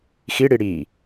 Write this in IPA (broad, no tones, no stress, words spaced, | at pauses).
xiɽi ɽiː